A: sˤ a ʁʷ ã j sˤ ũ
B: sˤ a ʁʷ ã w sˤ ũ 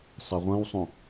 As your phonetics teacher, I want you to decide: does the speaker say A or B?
B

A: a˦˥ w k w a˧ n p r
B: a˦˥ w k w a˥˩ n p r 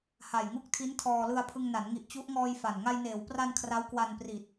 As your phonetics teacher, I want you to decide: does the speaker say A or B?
A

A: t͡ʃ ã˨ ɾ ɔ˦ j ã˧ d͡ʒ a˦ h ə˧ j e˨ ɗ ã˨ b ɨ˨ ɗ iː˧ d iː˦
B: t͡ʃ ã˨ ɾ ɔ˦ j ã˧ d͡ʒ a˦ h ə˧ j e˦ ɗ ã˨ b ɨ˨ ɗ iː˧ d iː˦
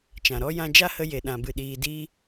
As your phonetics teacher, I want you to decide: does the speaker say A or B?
A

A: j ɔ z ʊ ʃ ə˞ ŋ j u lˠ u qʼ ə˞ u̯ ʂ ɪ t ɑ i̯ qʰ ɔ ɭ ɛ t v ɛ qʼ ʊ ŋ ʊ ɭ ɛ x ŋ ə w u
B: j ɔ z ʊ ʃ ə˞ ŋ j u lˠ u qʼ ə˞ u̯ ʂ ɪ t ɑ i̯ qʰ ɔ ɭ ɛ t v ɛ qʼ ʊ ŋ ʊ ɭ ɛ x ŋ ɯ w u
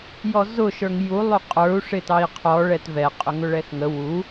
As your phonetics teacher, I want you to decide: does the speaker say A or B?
A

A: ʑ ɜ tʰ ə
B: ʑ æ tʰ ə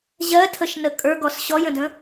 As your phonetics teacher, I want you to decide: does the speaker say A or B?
A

